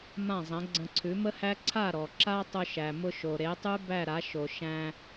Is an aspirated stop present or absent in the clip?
present